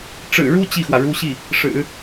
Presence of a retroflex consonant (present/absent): present